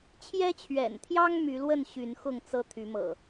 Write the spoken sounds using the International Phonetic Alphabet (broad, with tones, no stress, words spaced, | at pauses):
t͡ɕʰjɛ˦t͡ɕʰɥɛ̰˨˩nt̪ʰjɑ˦ŋ my˨˦lwə˥˨n ɕy˨˦nxʊ˥˨ŋt͡sɤ˦ t̪ʰy˨˦mɤ̰˨˩